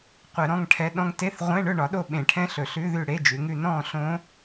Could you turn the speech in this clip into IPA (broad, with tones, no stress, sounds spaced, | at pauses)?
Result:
qʷ ɛ˧˩˧ ɾ ɔ̃˧˥˧ ŋ ʈʰ ɛ˧˥˧ ɗ ɔ̃˦˥ ŋ t e˧˥˧ θ ʁʷ ɛ̃˧˥˧ ɳ ɵ˥˨ ɳ ɒ˨˥ ɗ o˥˨ ɓ ẽ˧˩˧ ʈʰ ɛ̃˦˥ ɬ ɵ˧˩˧ ɬ ʉ˧˥˧ ð ʉ˥˨ ɽ e˧˥˧ d͡ʒ ʉ˩˧ ŋ ʉ˥˨ n ɔ̃˥˨ ɬ õ˦˥